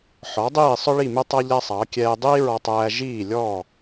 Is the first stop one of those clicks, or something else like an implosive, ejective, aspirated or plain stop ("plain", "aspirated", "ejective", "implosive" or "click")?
plain